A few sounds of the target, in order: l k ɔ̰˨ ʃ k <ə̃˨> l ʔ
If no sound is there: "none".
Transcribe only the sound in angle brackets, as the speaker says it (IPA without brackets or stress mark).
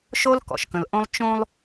ə̃˨